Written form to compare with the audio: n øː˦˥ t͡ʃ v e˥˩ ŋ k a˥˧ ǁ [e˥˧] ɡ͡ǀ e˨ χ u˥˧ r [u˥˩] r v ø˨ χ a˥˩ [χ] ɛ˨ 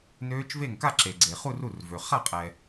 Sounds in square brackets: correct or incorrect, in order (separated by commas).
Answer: incorrect, correct, incorrect